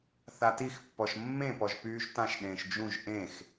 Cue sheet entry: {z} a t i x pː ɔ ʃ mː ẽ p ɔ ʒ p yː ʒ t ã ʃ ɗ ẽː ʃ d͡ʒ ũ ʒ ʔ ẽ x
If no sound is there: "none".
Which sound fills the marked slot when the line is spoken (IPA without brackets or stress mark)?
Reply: θ